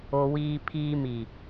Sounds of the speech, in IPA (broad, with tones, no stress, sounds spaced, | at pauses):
o˨ w iː˨ pʰ iː˨ m i˨